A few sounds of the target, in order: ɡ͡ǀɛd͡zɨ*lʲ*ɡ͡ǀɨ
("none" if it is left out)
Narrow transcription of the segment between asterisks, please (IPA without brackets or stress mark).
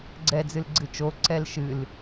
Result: l